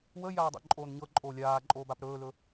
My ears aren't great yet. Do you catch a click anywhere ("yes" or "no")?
yes